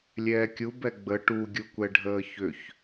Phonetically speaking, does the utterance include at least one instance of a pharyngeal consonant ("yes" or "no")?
no